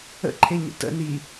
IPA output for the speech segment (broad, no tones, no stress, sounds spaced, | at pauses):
ə̰ ǃʰ e ɲ ə̰ t ə̰ n i